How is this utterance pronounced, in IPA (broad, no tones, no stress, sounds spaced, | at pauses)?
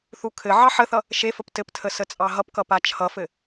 θ u kʰ ɘ ʕ ɑ ħ ə θ ʌ | ʃ e f ə p t ɘ p tʰ ə s ə t͡sʼ ɑ ɦ ʌ p k ʌ p a t͡ʃʰ ʌ f ɘ